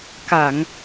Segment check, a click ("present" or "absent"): absent